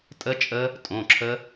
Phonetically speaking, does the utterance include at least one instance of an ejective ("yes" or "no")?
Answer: yes